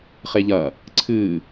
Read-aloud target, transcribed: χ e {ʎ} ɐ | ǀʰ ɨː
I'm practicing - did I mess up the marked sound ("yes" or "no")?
no